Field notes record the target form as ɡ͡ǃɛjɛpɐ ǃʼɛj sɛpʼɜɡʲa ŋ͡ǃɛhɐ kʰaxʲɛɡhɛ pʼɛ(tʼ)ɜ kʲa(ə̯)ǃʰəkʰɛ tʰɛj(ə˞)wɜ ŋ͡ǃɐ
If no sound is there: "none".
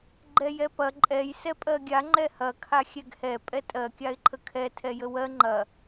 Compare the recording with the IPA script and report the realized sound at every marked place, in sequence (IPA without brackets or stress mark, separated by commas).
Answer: tʼ, ɪ̯, ə